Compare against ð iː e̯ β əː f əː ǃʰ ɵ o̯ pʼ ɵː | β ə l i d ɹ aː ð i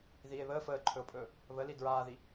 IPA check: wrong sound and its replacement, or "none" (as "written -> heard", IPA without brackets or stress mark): none